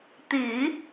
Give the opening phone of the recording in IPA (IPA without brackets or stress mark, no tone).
t̪